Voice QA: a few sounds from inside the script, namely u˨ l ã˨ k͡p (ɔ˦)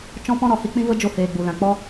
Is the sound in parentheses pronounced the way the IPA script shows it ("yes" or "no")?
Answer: yes